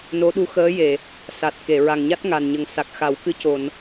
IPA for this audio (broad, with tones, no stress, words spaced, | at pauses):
no˧˥ɗu˧˥ xəː˧˥je˨˩˨ | sa˨˩t̚ ke˨˩˨ɹa˨˩ŋɲa˦˥t̚ ŋa˨˩nɲə˨˩ŋ sa˨˩k̚xa˨˩˦wkɨ˧˥co˨˩˨n